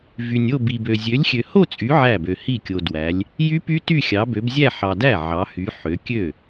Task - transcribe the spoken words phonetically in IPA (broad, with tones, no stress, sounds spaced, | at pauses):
v y˨ nʲ o˥˧ b i˨ b ø˨ zʲ ø˨˦ lʲ xʲ ø˨ h o˥˧ t͡sʼ y˨˦ ʕ æ˥˩ b ø˨ h i˥˩ kʲ o˨ d w æ˨˦ lʲ | j y˦˥ p y˦˥ t y˥˧ xʲ ɑ˨˦ b ø˨˦ b zʲ æ˥˧ ħ ɑ˨ d æ˥˩ ʕ ɑ˨˦ h y˨˦ ħ ø˨˦ kʲ ø˥˩